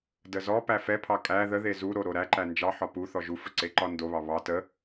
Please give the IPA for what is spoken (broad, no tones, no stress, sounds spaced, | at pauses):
d ə z ɔ p æ f ɛ pʰ ɑ kʼ æ ð ə ð e z u ɾ o ɾ o ɾ æ ǃ æ n d͡ʒ ɑ ħ ɒ p u θ ɔ ʒ u f ə ǀ e ǃ ɒ n d o β ɑ β ɑ t ə